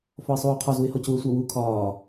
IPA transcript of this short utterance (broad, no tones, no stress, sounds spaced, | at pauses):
f ɔ ɪ̯ sˤ uː qʰ ɒ z u ɪ̯ h ɔ c u ə̯ sʷ a w uː kʰ ɒː